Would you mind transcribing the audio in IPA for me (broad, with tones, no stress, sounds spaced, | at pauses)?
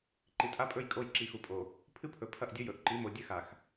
ǃ i˨ tʼ a˦ pʼ ɵ˦˨ j kʼ o˦˨ j ǁ i˨ x u˨ pʼ o˨ | pʰ ɨ˦ pʰ ɵ˨ pʰ ɐ˦˨ ʔ dʲ ɵ˦ j ɵ˨ ʔ ǃ i˨˦ m o˨ dʲ ɨ˦˨ x a˨ x